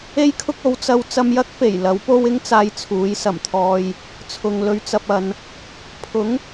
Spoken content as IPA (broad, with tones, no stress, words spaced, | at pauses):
e˥jkʰʊ˥k̚o˨˥w t͡sɐ˧w t͡sɐ˧mjɐ˥k̚fe˨˩j lɐ˨˥wpo˥w ɪ˥ŋt͡saː˧j t͡sʰuː˨˥jsɐ˨˩mt̪ʰɔː˧j | t͡sʰʊ˨ŋlɵ˧ɥt͡sɐ˧p̚ɐ˨˧n | pʰʊ˨˥ŋ